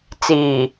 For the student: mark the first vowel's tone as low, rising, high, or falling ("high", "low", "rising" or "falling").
low